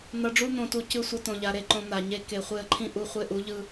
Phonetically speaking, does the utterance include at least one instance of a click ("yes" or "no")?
yes